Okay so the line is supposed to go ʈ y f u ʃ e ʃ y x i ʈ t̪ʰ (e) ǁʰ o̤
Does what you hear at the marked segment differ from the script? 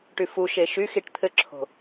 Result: yes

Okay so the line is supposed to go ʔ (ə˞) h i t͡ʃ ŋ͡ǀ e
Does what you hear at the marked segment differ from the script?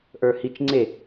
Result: no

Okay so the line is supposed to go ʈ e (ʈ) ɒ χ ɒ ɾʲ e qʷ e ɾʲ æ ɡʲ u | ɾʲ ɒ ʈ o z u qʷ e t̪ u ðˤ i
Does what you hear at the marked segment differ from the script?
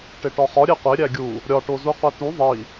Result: no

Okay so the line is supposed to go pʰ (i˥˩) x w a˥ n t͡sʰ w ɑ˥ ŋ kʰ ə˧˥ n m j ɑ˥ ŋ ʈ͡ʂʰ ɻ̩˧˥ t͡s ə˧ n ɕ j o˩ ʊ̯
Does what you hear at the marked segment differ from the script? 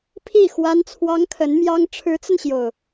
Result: no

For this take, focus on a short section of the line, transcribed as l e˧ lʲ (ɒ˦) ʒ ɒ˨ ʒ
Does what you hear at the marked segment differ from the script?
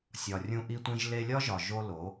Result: no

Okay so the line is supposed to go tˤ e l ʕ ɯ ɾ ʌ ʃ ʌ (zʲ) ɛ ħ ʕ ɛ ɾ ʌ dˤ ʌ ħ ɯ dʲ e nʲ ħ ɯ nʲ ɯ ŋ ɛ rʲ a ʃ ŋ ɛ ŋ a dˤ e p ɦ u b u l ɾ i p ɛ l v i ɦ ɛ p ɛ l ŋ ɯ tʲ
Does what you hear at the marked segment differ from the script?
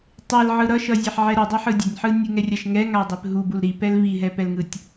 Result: no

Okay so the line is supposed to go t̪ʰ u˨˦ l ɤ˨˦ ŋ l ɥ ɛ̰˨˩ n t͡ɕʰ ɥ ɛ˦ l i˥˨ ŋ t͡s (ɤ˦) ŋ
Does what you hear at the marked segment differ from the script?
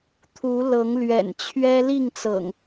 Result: yes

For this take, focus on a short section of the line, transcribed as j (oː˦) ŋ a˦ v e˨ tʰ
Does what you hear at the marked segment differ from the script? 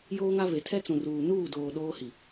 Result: no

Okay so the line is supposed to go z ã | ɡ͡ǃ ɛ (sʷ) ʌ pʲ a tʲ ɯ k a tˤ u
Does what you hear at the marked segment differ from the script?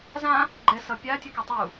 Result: yes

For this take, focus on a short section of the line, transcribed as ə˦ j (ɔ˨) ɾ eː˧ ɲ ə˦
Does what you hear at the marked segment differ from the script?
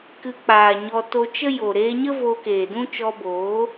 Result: yes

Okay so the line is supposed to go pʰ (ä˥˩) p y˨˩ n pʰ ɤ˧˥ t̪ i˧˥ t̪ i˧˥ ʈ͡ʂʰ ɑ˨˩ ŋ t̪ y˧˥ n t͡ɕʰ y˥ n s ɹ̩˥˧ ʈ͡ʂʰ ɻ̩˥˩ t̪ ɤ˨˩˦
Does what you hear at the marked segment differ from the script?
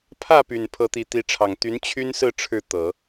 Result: no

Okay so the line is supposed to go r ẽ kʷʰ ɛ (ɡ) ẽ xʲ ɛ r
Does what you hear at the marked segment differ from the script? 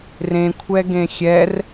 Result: no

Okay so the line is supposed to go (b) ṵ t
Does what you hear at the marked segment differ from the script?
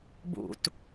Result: no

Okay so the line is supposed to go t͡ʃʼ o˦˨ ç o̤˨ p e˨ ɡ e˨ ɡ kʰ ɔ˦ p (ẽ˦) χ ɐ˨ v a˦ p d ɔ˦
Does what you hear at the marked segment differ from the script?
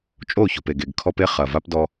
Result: yes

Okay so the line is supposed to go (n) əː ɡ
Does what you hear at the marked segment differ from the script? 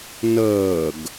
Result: no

